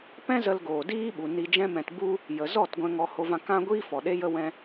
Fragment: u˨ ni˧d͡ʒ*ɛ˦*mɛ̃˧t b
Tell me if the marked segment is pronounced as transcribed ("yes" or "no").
no